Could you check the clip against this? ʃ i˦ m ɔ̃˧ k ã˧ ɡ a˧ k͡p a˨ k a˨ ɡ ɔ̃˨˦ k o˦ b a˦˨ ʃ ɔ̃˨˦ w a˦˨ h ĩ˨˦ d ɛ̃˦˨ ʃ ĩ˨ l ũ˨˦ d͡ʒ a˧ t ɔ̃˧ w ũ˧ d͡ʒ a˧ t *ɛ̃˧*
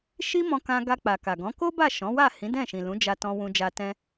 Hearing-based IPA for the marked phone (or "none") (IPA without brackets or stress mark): ɛ̃˦